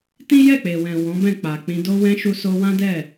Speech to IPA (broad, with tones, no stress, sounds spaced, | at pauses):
t ĩ˦ j ɛ˦˨ k͡p e˨ w ɛ̃˨ w ɔ̃˨˦ b ɛ̃˦˨ k͡p a˨ k͡p ĩ˧ d o˦ w ɛ̃˦ ʃ u˧ s o˧ w ã˦ d ɛ˦˨